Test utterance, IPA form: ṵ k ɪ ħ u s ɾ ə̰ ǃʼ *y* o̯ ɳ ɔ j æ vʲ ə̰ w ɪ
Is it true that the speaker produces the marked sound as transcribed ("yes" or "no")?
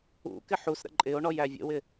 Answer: no